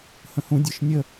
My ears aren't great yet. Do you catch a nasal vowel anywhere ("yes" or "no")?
yes